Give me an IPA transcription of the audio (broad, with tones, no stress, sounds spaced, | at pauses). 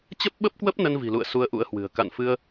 t͡ɕ ə˦˥ p̚ ɓ ə˦˥ p̚ k w ə˦˥ p̚ n ə˧ n v i̤˨˩ l ṵ˧˨ ə̯ s u˧ ə̯ ʔ ṵ˧˥ ə̯ h w ɨ̤˨˩ ə̯ k a̰˧˨ n f ɨ˧ ə̯